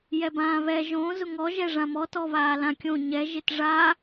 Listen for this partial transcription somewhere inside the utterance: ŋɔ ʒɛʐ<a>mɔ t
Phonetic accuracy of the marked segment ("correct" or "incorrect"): incorrect